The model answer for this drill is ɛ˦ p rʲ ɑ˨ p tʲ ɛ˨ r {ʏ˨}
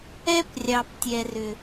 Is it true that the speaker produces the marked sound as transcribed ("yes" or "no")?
yes